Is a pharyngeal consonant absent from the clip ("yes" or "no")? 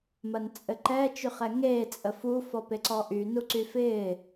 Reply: yes